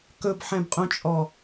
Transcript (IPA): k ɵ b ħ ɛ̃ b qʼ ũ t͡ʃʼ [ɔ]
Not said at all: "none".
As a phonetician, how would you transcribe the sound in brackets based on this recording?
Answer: ɔ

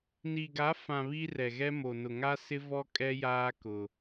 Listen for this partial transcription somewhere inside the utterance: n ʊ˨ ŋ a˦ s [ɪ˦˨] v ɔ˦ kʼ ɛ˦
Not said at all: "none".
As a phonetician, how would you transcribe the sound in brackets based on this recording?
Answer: ɪ˦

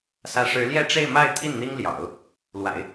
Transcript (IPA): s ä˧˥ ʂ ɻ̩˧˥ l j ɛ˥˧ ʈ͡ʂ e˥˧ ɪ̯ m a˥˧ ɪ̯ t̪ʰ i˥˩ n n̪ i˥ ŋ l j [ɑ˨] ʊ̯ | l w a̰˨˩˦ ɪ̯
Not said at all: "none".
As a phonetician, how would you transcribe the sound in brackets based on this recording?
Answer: ɑ̰˨˩˦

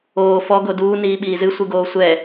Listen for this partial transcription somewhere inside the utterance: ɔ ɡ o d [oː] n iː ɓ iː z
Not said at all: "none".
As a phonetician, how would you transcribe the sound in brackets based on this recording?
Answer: uː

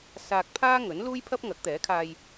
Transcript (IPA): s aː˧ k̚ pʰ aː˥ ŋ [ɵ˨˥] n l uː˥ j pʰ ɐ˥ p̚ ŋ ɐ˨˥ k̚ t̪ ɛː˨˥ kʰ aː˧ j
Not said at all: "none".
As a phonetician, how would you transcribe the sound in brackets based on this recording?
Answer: ɵ˨˥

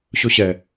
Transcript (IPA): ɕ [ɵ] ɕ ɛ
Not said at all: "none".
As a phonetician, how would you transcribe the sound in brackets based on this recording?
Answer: ɵ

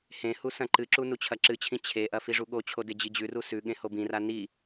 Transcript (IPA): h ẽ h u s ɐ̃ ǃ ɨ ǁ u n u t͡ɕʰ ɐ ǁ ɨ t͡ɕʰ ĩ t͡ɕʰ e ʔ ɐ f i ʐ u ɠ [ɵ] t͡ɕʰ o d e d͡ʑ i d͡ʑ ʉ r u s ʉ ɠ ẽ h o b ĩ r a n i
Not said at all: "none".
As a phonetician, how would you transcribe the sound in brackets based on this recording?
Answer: o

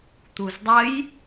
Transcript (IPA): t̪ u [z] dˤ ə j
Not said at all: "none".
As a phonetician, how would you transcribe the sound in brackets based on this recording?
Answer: z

